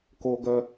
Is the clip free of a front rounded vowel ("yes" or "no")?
no